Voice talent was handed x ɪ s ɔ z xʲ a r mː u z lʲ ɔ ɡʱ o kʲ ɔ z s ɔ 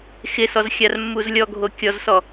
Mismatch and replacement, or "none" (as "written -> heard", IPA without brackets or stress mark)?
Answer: none